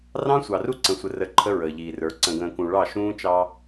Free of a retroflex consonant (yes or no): no